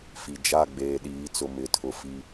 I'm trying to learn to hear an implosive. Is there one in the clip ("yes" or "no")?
yes